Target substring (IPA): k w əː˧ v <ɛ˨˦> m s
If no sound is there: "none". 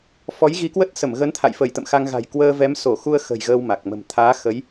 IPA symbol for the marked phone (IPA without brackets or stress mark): ɛ˨˦